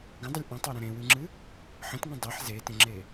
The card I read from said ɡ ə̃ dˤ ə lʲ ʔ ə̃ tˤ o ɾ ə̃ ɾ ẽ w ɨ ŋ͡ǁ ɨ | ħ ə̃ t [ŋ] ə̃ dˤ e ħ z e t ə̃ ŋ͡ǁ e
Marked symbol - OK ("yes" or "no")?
yes